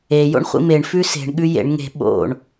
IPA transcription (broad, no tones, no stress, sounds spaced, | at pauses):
e j o̰ ɳ χʷ ḭ m e ɳ f ʉ s e̤ ɳ ɠ ʉ j ḛ ɳ ŋ e̤ ɓ o̰ ɳ